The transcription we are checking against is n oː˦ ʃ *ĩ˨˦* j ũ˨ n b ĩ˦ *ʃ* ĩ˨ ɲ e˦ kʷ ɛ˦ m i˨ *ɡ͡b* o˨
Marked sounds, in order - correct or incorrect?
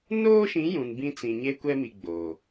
correct, incorrect: t͡s, correct

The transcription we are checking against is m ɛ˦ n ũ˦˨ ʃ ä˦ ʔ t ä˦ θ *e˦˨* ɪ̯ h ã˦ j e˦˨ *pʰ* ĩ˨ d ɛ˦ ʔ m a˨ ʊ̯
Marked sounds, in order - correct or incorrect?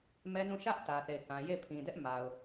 correct, correct

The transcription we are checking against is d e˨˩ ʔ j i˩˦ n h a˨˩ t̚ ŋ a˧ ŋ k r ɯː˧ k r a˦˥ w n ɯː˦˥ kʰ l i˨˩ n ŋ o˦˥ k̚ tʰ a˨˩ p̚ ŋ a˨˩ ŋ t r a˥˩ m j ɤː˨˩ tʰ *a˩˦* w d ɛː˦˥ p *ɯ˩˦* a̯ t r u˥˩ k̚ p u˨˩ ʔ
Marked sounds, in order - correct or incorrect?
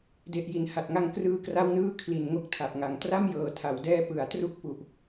correct, correct

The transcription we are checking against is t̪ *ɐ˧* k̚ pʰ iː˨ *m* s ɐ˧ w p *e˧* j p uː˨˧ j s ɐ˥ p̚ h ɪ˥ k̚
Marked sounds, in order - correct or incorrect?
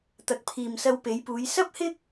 incorrect: ɐ˨, correct, incorrect: e˨˧

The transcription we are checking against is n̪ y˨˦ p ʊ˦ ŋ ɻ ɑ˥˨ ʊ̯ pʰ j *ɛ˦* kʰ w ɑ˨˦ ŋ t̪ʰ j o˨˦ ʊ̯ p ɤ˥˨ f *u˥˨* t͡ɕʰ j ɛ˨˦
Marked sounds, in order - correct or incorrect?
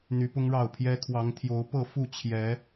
correct, correct

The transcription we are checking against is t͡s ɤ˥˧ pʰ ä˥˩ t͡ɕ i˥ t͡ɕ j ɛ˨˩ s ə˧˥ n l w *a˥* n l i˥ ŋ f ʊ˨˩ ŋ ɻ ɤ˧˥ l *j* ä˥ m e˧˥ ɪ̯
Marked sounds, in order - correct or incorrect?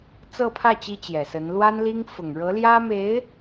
correct, correct

